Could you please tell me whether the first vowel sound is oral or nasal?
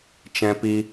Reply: nasal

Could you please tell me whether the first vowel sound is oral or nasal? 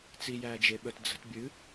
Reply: oral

